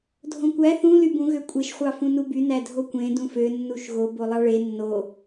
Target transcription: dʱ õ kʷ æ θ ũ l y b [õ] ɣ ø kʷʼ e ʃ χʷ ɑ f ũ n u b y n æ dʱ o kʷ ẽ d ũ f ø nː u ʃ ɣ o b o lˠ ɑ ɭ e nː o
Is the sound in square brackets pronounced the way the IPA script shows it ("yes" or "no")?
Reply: no